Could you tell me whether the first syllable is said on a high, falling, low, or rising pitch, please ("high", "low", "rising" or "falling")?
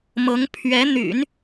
rising